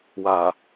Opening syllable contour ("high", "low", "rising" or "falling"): low